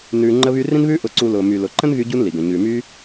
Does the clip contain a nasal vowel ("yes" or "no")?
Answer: yes